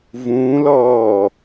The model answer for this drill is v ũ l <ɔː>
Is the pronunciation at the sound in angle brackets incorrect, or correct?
correct